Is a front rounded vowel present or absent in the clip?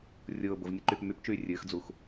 present